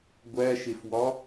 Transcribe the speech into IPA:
ɡʷ æ ʃ e f w ɒ

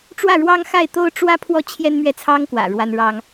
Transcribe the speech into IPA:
ʈ͡ʂ w ä˥˩ ɻ w ɑ˥ ŋ x a˥˩ ɪ̯ t̪ o˥ ʊ̯ ʈ͡ʂ w ä˥ pʰ w ɔ˥˩ t͡ɕʰ j ɛ˥ n m ɥ ɛ˥˩ t͡sʰ ɑ˥ ŋ k w ä̰˨˩ ɻ w a˥ n ɻ ɑ˥ ŋ

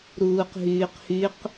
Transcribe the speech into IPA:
ɾ uː q ɦ yː q h y q

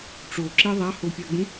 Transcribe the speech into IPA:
ʈ͡ʂ o ǁ e ðˤ a h o pʲ a ɡ͡b ũ

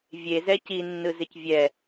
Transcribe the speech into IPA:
vʲ e z ɛ c i nː ɯ z ɪ c vʲ ɛ

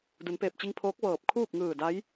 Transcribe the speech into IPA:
d u˩˧ n p eː˧˩ p̚ t͡ɕ i˧ ŋ pʰ oː˧˥ k̚ ʋ ɤː˧˩ p̚ kʰ uː˥˨ p̚ ŋ ɯː˧˩ d a˧˥ j

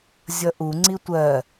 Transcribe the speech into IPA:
zʲ ʌ ʔ u ŋ͡ǀ i tʷ ɜ

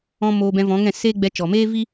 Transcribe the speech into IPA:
ɔ̃˧ m oː˧ b ɛ̃˧ v ɔ̃˨˦ ŋ ɛ̃˦˨ s eː˦ ɡ͡b ɛ˧ t͡ʃ ɔ˨ m eː˦ v i˦

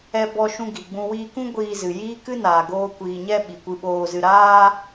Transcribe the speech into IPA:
ɛ˧ b ɔ˧ ʃ ũ˧ ɡ i˨ ɡ͡b ũ˧ w iː˧ k ũ˦ ɡʷ iː˧ z ɨ˨ j iː˦ k ɨ˦ n aː˨ ɡ oː˧ kʷ iː˨ ɲ ɛ˧ ɓ i˨ kʷ ɨ˧ ɓ oː˧ z ɨ˧ ɾ aː˧

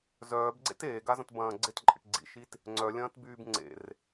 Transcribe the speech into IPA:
z œː b ɡ͡ǀ ḛ t eː ɡ a z ɐ̃ t b ɐ̃ː ɡ͡ǀ ɪ t ǃʼ ḛ ʈ ɡ͡ǀ ḭ ʃ i t | ŋ͡ǀ œ lʲ ɐ̃ː t b yː b ŋ͡ǀ ḛ r

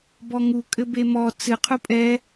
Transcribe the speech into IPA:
b ɔ ŋ u kʼ ɘ b e m ɔ t͡s ɨ qʰ u pʼ ɛ

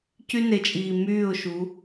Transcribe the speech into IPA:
c y˦ n e˨ t͡ʃʼ iː˨ m yː˦˨ ʊ̯ ʃ u˨˦

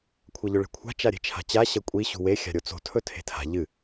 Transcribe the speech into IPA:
kʷʰ ɐ ʎ ɵ ɭ e̤ kʷʰ a̤ t͡ʃ a ɾʲ e̤ t͡ʃʰ a̤ t͡ɕ a ɕ ɐ kʷʼ i ɕ ṳ w e xʲ a̤ ɾʲ o t͡s o̤ tʰ ɵ tʰ e̤ tʰ a̤ ʎ ɨ

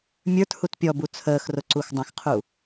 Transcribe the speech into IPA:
mʲ ə˞ t h u t pʲ ɔ b u t͡sʰ əː x r ʊ ǀ u x dˤ ə̃ x qʰ u

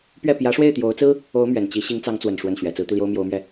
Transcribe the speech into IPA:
p ɥ ɛ˥˩ p j ä˧˥ ʂ w e˥˩ ɪ̯ t̪ j o˧˥ ʊ̯ t͡s ɹ̩˥ | o˧˥ ʊ̯ m ɥ ɛ˨˩ n t͡ɕ i˧˥ ɕ i˧˥ ŋ t͡s ɑ˧˥ ŋ t͡s w ə˨˩ n ʂ w ə˥˩ n ɕ ɥ ɛ˨˩ t͡s ɹ̩˧˥ t̪ i˧ l j o˥ ʊ̯ m j o˧˥ ʊ̯ m ɥ ɛ˥˩

